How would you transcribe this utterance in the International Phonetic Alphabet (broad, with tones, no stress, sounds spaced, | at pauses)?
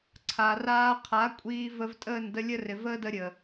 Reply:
ǀʰ a˨ r aː˧ qʰ a˨˦ kʷʼ iː˧ v ə˧ v tʼ əː˦˨ n d ə˧ lʲ ə˦ r ɪ˨ v əː˦ d ə˧ ɾʲ ə˨